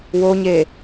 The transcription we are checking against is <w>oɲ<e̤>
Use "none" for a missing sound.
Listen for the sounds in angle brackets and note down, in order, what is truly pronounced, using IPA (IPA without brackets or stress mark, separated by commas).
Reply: w, e